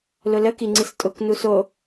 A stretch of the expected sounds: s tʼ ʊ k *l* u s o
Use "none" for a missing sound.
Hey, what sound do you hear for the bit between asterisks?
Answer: n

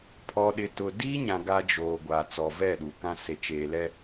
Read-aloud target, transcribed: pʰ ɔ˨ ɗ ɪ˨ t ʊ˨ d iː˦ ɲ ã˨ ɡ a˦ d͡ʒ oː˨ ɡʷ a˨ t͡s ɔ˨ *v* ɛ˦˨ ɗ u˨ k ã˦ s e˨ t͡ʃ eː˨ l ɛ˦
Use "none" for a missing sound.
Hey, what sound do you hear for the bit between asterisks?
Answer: v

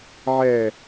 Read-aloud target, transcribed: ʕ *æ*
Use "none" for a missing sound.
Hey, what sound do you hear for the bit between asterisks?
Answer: ɛ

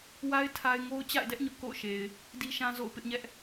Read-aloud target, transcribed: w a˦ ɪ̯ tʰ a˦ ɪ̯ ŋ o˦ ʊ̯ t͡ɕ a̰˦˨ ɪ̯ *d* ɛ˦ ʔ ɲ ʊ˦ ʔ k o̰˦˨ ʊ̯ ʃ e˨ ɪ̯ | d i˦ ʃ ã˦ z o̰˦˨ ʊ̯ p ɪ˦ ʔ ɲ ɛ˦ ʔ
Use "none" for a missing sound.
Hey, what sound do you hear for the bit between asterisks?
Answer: d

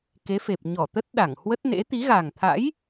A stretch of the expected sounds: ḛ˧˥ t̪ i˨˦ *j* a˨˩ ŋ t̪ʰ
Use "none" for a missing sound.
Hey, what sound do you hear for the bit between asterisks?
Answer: ɣ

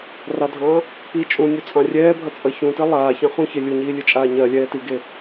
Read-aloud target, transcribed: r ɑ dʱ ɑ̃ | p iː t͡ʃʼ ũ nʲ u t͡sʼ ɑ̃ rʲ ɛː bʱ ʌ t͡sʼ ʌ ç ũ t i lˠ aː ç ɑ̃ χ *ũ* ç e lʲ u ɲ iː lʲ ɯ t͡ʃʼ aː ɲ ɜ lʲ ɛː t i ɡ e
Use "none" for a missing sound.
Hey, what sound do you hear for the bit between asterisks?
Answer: ũ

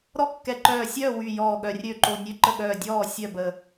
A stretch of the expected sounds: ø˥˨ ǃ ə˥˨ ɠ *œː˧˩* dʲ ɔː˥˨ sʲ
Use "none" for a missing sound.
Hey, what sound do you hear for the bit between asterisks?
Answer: œː˧˩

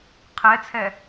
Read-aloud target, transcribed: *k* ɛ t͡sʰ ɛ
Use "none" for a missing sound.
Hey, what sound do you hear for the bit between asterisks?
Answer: qʰ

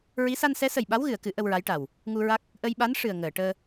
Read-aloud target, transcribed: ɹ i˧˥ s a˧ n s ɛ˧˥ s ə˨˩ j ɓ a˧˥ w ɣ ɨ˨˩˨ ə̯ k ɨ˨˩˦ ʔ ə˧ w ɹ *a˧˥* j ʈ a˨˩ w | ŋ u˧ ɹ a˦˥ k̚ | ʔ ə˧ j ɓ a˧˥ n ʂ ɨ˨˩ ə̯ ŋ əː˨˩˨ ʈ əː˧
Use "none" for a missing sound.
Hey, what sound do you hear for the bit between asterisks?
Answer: a˧˥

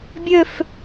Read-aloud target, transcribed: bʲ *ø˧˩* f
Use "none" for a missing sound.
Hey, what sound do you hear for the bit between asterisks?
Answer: ø˧˩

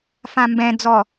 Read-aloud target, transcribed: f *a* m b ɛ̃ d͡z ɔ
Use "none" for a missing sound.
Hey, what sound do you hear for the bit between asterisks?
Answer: ã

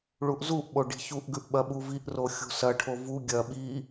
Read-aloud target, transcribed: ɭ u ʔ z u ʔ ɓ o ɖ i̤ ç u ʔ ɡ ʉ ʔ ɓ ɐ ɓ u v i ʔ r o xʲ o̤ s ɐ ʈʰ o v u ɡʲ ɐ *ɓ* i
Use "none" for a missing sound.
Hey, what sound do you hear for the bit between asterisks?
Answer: ɓ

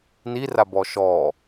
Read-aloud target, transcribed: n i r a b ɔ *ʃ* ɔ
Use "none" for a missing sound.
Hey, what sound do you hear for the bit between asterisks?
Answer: ʃ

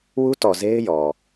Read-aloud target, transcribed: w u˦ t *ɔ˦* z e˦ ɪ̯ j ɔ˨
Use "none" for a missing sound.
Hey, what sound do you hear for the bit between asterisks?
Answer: ɔ˨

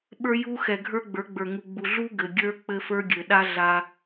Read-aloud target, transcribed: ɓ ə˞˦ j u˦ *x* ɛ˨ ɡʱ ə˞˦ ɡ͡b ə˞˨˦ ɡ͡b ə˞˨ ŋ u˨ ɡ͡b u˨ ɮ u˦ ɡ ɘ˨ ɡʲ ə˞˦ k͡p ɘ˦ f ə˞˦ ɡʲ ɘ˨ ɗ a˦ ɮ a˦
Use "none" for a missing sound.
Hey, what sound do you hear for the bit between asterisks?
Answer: x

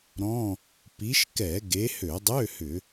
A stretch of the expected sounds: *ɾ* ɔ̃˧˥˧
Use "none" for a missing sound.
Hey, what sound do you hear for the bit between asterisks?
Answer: ɾ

